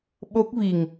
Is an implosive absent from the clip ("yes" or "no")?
no